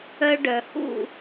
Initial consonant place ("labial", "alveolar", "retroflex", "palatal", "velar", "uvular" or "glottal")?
retroflex